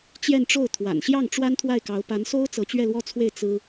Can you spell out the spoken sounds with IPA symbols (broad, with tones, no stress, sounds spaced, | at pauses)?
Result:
t͡ɕ j ɛ˥˧ n ʈ͡ʂ o˥˩ ʊ̯ t̪ʰ w a̰˨˩ n ɕ j ɑ˥˩ ŋ ʈ͡ʂ w a˥ n t̪ʰ w a˥˩ ɪ̯ k ɑ˧˥ ʊ̯ p a˧˥ n s o˥ ʊ̯ t͡s ɤ˧˥ t͡ɕ ɥ ɛ˥˧ l w ɔ˥˧ t͡sʰ w e˥˩ ɪ̯ t͡s ɹ̩˥